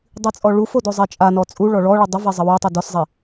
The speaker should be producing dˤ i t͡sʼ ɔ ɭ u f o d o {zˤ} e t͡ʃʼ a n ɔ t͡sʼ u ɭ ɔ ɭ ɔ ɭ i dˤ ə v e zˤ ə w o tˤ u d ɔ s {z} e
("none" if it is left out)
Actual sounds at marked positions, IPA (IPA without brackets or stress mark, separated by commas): zˤ, zˤ